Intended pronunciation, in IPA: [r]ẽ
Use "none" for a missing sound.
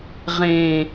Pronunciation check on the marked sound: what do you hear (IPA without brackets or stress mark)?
ʁ